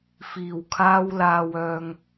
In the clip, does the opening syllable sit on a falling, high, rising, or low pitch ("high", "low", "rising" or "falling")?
low